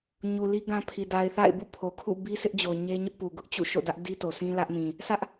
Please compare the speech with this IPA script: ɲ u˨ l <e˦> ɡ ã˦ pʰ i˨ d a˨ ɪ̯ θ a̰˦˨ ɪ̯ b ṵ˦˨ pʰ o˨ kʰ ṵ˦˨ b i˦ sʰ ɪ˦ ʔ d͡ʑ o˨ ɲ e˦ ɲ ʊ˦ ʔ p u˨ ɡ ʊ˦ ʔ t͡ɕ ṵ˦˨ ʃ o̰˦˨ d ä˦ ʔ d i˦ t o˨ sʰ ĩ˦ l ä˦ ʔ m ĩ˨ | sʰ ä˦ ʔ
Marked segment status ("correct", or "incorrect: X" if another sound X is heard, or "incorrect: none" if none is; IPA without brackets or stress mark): incorrect: i˦